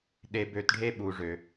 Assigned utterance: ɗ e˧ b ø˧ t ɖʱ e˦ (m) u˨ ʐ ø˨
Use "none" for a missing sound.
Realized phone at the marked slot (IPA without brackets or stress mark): ɓ